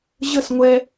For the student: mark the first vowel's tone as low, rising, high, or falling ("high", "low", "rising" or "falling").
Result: falling